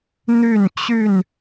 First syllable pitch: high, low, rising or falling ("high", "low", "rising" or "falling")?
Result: falling